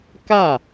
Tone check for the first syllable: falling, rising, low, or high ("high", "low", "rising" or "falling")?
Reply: falling